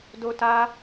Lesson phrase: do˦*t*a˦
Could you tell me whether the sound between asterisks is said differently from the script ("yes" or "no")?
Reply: no